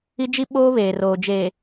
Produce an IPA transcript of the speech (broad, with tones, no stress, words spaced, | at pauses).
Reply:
i˦d͡ʒi˦ɓo˦ βeː˨roː˨d͡ʒeː˨